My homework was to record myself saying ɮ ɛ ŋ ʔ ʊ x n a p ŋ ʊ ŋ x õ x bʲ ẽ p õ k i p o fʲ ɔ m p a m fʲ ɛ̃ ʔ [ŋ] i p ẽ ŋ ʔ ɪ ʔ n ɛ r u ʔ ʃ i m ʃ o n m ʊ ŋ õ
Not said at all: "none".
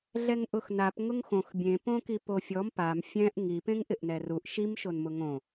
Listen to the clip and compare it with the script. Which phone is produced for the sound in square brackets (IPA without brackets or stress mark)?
ŋ